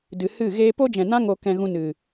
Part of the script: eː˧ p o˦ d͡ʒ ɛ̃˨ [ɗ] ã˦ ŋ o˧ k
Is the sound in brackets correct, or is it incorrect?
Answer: incorrect